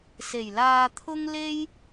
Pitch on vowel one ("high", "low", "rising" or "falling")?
low